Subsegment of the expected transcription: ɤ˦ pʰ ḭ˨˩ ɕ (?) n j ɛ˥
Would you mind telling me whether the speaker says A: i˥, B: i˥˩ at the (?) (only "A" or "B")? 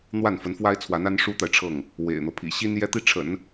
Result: A